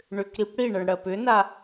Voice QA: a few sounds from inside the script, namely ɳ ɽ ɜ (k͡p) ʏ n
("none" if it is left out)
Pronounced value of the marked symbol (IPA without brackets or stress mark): p